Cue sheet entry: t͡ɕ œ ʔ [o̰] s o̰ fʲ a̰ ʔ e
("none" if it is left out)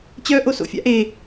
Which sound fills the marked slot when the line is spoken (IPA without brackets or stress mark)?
o